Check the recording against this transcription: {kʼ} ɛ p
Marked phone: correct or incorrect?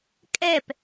correct